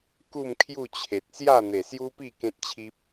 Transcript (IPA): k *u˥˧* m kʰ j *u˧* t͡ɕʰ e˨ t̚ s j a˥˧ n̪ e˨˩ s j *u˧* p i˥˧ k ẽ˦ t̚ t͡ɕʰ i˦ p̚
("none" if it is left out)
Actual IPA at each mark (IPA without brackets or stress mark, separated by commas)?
u˥˧, u˥˧, u˦